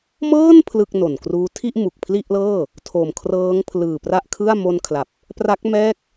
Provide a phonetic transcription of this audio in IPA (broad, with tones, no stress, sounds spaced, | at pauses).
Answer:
m ɤː˥˩ n pʰ l ɯ˥˩ k̚ n o˨˩ n k r uː˦˥ tʰ i˥˩ ʔ m u˨˩ k̚ pʰ l i˥˩ ʔ l ɤː˥˩ | tʰ o˨˩ m kʰ r ɤː˦˥ ŋ pʰ l ɯː˨˩ p r a˥˩ ʔ kʰ ɯ˥˩ a̯ m o˧ n kʰ l a˨˩ p̚ | p r a˦˥ k̚ m ɛː˥˩ k̚